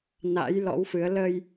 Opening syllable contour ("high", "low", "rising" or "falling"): rising